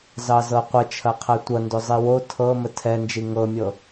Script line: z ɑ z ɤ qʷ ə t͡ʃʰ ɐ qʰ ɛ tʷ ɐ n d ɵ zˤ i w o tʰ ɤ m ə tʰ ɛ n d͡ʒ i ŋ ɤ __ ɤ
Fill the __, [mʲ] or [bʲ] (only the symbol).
mʲ